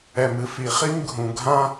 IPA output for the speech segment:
ɛ˨ m ɨ˦ f i˨ χ i˥ m ɡʱ ũ˨ ɡʱ ã˥

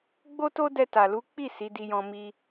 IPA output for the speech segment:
ɡ͡b o˦ t o˦ d ɛ˧ t a˨ l u˨˦ k͡p i˦˨ s i˨˦ d i˧ j ɔ̃˧ m i˧

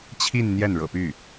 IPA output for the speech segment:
t͡ɕʰ i˥˧ n n̪ j ɛ˥˩ n ɻ ɤ̰˨˩ p y˥˩

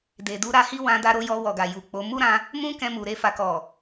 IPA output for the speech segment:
d e˨ d u˧ ɾ a˧ h i˦ w ã˧ d a˧ ɾ o˧ j ɔ˧ w ɔ˨ ɡ a˨ j u˨ k͡p o˨˦ m u˦ ɾ ã˧ | m ũ˦ k ɛ̃˧ m u˨ ɾ e˧ f a˨ k ɔ˨

